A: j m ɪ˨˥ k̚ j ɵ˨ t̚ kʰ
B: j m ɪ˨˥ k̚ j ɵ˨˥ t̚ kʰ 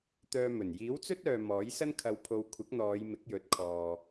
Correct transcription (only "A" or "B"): B